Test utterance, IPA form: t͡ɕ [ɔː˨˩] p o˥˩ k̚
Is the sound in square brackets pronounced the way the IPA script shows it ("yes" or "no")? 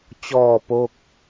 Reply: no